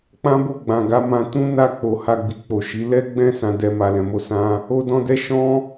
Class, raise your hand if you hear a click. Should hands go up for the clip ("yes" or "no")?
no